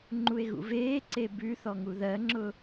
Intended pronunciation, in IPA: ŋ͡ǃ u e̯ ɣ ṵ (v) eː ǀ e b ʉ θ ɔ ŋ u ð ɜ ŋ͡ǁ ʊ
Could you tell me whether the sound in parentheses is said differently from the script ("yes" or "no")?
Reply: no